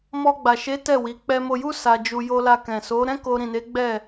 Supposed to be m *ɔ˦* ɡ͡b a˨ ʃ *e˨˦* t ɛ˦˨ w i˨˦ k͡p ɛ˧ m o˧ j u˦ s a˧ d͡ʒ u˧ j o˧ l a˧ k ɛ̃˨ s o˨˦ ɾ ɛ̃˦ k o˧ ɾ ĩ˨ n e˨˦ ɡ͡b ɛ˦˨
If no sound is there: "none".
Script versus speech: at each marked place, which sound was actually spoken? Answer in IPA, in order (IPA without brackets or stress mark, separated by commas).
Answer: ɔ˧, e˨˦